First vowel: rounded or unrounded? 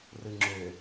unrounded